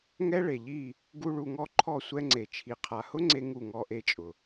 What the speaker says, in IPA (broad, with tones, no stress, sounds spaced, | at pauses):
ŋ ɛ˦ ɭ e˨ ʎ i˦˨ | ɡ u˦ ɭ u˧ ŋ ɔ˦ ǃʰ ɔ˦˨ sʷ ɛ˧ ŋ͡ǀ e˨ t͡ʃʰ i˨ qʰ a˨ h ʊ˦ ŋ͡ǀ e˧ ŋ u˦˨ ŋ ɔ˧ ʔ e˧ t͡ʃʼ ʊ˨